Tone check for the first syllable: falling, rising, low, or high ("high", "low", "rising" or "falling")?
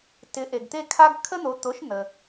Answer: rising